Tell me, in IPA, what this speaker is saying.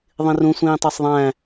ðˤ ĩ r ũ sʷ ĩː tˤ ɑ sˤ ðˤ æ̃

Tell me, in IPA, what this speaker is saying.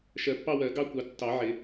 ʃ ɜ˨˩˦ pː ɑ˥˧ w ɜ˨˩˦ ɡ ɑ˥˧ kʷ ɑ˨˩˦ tː ɑ˨˩˦ ʕ ɪ˨˩˦

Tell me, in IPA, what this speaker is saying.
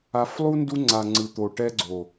a˧ f lˠ u˦ n d u˧ ŋ͡ǀ a˨ ŋ͡ǀ ɯ˨ t̪ o˨ ʈ ɛ˧ ɡ͡ǀ o˨

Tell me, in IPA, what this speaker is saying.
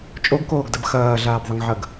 t͡ʃʼ o ɡ k oː ɡ d ɐ b x ɐː ɮ aː b ðˤ ə ŋ ʕ ɐ ɡ

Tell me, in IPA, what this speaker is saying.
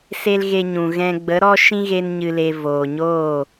s e˦ l ɣ e˧ ɲ ũ˨ ɣ ɛ̃˧ ɡ͡b ə˨˦ ɾ ɔ˦ ʃ ĩ˦ ɣ e˦ n ɲ ɨ˧ l e˧ v oː˨ ɲ oː˦˨

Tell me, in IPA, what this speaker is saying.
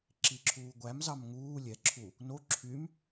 ǁ i ǁʰ uː ɡʷ æ m z ɑ m ŋ uː lʲ ɛ ǁʰ u | n o ǁʰ y m

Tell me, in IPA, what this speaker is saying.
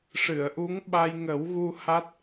ʂ ɨ˨˩˨ ə̯ ʔ u˧˥ ŋ ɓ a˧ j ŋ ə˨˩˦ w ɣ u˧ h a˦˥ t̚

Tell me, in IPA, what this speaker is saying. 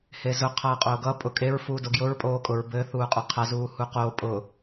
h e z ʊ qʰ ʌː qʼ oː ɡ ʌ pʼ ʊ kʼ e ɹ f uː d o ɡ j ʊ ɹ pʼ oː kʼ ʊ ɹ b ɘ θ uː qʼ ʊ qʰ a z uː h u q o pʼ ʊ

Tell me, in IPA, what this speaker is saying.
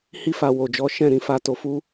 h i˧ f a˨ w o˨ d͡ʒ ɔ˨˦ ʃ ɛ̃˦˨ ɾ ĩ˧ f a˧ t o˨ f u˧

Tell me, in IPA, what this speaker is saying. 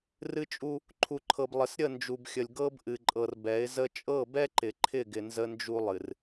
r ɨ˦ t͡ʃʼ u˦ | ǃʰ u˨ ǃʰ ɤ˨ b lˠ ə˨ s ɾʲ ə˦˨ n d͡ʒ u˨ b xʲ ə˨ lʲ ɡ ɤ˦ b ʔ ɨ˨ ǃʼ ɤ˨ r b ɛ˨˦ ɪ̯ z ə˦ t͡ʃʼ ɤ˦˨ b ɛ˦ ǃ ɪ˨ ǃʰ ɪ˦˨ ɡ ɪ˨ n z ə˦ n d͡ʒ u˦ lˠ ɨ˨ r

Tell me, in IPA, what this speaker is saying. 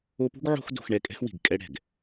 o˦ p ṳ˥ ɡ ʕ o̤˥ x d o̤˦ x ɳ ɛ˦ kʼ ɛ̤˥ x w i̤˨ ɡ kʼ ɛ˥ ɽ ɛ̤˩ ɡ

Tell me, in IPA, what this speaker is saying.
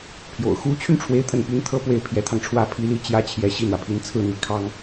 pʰ j o̰˨˩ ʊ̯ x u˧˥ t͡ɕʰ y˧ n ʈ͡ʂʰ w e˥˧ ɪ̯ t̪ʰ ə˥˩ n p y˥ n t̪ʰ ɤ˥ p w e˥˩ ɪ̯ pʰ j ɛ˧˥ t̪ʰ ɑ˧ ŋ ʈ͡ʂʰ w ä˥ pʰ i˧˥ l i˥˩ t͡ɕ j ä˥ t͡ɕʰ j ɛ˧˥ ɕ i˥˩ n̪ w ä˩ pʰ i˧˥ n t͡sʰ ɹ̩˥˩ n̪ i˧˥ kʰ ɑ˥ ŋ

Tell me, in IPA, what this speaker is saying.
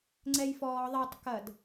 ŋ͡ǀ ɛ j f ɔː ðˤ e tˤ k ɐ d

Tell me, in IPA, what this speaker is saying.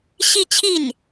ɕ i˥˧ t͡ɕʰ i˥˩ n

